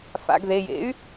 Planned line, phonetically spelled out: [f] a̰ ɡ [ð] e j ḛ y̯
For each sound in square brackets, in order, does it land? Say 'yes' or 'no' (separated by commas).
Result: yes, yes